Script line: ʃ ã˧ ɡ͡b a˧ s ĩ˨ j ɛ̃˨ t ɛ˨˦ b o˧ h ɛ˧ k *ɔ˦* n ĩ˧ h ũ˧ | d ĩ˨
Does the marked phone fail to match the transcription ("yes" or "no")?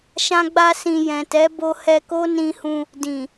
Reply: yes